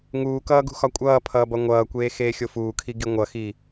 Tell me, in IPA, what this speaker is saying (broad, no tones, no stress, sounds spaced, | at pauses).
ŋ uː k ʌː ɡ ṳ x ɒ kʷʼ ʌː pʰ ʌː b ʌ ŋʷ ʌː kʷ eː x eː xʲ o f uː kʰ i ɡ i ŋʷ ʌ x i